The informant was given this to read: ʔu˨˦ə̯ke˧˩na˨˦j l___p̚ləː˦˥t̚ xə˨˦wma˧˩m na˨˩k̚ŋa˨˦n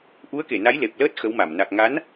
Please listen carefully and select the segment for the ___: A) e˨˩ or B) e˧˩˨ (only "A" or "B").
A